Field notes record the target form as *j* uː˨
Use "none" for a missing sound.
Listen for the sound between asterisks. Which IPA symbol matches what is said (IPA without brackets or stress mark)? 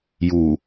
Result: j